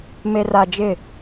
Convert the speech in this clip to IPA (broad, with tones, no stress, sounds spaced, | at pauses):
m e˨ r a˨ d͡ʒ ɪ˦˨